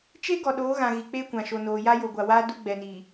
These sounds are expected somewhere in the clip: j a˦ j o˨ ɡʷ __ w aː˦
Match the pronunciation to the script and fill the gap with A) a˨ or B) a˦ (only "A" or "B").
A